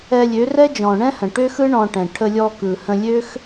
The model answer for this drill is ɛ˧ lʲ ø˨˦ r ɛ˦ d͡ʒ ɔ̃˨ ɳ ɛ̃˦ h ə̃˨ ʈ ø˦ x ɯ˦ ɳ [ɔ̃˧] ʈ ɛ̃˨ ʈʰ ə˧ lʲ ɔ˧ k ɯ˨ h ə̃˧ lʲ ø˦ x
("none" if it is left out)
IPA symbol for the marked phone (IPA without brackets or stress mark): ɔ̃˧